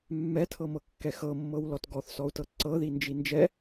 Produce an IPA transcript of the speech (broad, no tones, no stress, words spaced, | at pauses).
mːɛtʰɤmɤkːɛ xɤmːɤwlɔt ɡɔθsɔu̯tɤ ǀɤðind͡ʒi nd͡ʒɛ